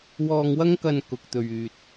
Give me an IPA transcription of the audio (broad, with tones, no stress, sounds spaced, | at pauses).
w ɔː˧ ŋ w ɐ˥ ŋ k ɐ˧ n k ʊ˨ k̚ t̪ ɵ˨ ɥ yː˨ t̚